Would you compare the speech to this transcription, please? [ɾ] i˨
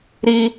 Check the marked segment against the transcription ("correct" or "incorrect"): correct